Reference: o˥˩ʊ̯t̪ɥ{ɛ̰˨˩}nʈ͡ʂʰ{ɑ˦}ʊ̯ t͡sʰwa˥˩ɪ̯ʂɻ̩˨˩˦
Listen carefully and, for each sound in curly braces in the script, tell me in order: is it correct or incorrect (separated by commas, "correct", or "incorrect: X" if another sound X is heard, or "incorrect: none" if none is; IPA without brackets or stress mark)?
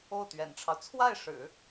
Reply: correct, correct